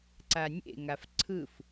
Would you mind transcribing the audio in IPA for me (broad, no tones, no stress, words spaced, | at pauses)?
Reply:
ǀanʲḛ ŋafǀʰɯf